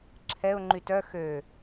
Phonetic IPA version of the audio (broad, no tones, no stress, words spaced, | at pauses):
ǁʰɛʊ̯ ŋ͡ǃytœ xø